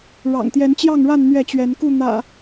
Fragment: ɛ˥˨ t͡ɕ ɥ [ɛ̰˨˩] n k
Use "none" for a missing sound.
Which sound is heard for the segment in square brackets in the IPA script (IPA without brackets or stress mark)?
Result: ɛ˨˦